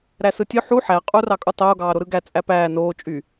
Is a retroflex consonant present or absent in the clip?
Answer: absent